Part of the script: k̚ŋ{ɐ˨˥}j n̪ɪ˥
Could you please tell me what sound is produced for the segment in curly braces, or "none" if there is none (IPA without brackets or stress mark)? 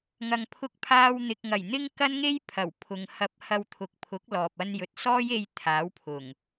ɐ˨˩